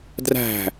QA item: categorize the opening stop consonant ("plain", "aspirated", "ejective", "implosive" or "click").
plain